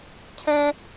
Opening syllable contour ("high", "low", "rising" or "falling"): high